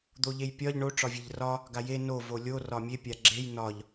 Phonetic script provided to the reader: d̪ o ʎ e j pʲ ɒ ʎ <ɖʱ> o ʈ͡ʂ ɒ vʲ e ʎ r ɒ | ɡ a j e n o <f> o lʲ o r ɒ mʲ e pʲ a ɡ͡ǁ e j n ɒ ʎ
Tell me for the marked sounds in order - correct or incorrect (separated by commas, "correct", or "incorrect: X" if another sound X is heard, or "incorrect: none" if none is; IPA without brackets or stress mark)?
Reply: incorrect: ɳ, incorrect: v